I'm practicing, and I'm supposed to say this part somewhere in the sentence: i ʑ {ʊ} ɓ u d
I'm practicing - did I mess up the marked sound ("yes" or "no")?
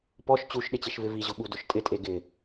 no